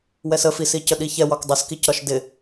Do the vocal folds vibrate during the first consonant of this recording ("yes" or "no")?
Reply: yes